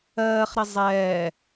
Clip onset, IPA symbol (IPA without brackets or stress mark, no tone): ɜː